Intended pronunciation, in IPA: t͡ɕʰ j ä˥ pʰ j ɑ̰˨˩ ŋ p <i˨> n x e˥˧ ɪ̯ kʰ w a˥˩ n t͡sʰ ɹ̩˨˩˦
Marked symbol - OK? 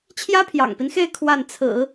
no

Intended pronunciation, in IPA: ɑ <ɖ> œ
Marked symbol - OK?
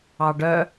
yes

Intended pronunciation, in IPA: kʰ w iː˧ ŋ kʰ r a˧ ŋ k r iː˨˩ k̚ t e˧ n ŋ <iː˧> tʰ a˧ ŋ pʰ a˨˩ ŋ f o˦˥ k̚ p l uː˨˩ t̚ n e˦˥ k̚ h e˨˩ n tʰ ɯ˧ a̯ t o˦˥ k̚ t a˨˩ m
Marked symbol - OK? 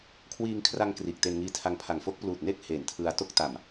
yes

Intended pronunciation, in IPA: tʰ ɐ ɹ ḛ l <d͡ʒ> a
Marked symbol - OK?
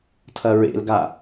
no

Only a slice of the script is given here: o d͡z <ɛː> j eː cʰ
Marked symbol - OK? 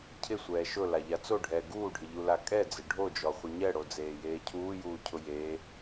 no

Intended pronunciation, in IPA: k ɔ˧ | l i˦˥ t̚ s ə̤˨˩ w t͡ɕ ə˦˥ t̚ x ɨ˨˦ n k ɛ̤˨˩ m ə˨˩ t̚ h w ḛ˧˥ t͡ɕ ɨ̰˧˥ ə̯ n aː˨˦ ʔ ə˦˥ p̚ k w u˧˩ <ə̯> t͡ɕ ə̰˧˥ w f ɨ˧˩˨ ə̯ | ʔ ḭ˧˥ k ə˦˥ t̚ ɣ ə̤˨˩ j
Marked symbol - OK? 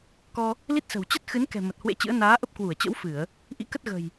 yes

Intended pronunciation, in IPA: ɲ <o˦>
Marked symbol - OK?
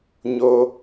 yes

